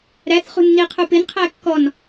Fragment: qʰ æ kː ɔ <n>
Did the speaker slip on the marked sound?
no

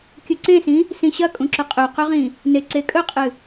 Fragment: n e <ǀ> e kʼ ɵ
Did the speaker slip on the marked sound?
no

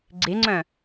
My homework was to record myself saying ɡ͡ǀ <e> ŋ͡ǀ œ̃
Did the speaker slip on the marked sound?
no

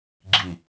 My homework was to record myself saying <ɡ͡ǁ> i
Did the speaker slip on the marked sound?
no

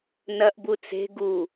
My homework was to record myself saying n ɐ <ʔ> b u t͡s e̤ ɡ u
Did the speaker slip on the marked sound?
no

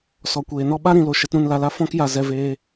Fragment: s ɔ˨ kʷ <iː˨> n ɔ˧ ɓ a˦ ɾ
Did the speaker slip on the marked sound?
yes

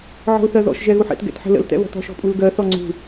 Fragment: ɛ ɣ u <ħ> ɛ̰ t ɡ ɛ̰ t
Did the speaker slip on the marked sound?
no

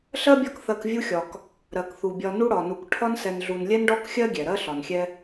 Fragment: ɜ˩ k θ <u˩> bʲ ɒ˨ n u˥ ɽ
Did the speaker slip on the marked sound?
no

